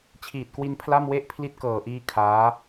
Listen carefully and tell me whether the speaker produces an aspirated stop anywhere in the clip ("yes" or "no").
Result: yes